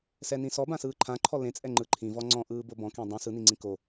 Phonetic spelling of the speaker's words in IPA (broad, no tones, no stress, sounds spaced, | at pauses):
s ɛ n ĩ s ɔ b ã s ɯː ǃʰ ã ǃʰ ɔ l ẽ t͡sʼ ɛ ŋ͡ǃ ɯ ǃʰ ĩ v ɔ ŋ͡ǀ ɔ̃ ʔ ɯː b o b ɔ̃ k ẽ dˤ ũ s ɯ n i ŋ͡ǀ ĩ k o